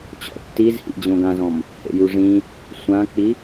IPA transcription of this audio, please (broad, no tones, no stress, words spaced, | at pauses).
t͡ɕɔ̰tːizhḭ d͡ʑõɡãzɔ̃m | hḛjuʐĩ | sʷãk͡pi